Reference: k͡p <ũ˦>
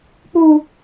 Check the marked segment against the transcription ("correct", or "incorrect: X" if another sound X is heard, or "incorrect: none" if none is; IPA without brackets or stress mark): incorrect: u˦